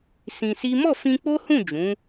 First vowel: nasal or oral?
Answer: nasal